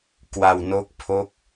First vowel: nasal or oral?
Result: oral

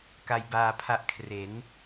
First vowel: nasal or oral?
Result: oral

